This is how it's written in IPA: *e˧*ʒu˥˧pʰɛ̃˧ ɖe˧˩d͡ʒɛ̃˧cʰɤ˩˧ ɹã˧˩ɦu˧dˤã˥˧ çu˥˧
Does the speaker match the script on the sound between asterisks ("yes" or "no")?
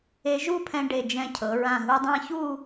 yes